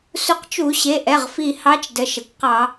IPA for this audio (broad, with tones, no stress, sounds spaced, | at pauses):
s u˧˩˧ q t͡ʃ u˧˩˧ ɕ e˩˧˩ ʔ ɛ˩˧˩ ʁ f i˧˩ h ɑ˧˥ t͡ʃ d ə˩˧˩ ʃ ə˩ kʷ q ɑ˧˩˧